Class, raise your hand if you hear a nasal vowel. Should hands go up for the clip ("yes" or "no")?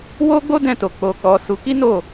yes